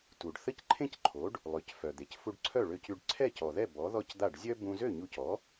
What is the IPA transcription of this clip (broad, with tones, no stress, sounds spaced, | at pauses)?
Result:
t u˩ ɖ θ ə˥˩ c ǃʰ ẽ˥ c ǃʰ o˩˥ ɖ | lˠ ø˩˥ c f œ˩ d̪ e˩ c f u˧ ɖ ǀʰ œ˥˩ ɭ ø˧ c y˧ ɖ ǀʰ ɛ˥˩ c ɔ˩ ð ɛ˥˩ b ɔ˩˥ ð ɔ˥˩ c d̪ a˥˩ ɖ zʲ œ˥ b ũ˧ z ø˥˩ ɲ u˧ c ɔ˩˥